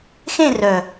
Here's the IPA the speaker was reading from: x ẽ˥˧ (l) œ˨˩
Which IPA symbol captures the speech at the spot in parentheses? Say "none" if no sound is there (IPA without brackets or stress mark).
r